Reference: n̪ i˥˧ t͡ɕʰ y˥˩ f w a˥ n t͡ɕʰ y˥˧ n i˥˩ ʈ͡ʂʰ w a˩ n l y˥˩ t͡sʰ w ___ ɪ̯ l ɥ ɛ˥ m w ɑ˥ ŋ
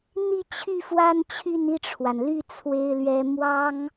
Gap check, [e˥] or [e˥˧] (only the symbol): e˥